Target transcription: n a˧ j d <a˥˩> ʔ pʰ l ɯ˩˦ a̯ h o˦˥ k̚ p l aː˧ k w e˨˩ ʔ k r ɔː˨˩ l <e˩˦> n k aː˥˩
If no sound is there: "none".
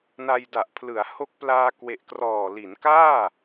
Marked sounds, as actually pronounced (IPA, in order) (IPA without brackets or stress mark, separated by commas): a˨˩, i˩˦